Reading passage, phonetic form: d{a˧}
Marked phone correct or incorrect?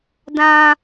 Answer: incorrect